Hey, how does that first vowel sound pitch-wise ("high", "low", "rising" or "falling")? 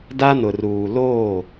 high